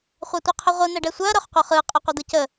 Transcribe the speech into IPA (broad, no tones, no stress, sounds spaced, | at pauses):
χʷ a tʷ ɛ qʰ œ ʁʷ ɯ n̪ ɛ ɖ ɛ sʷ œ ɐ̯ ɾ œ χ qʷ œ χ ɯ qʼ ə qʷ œ d̪ ɯ c ə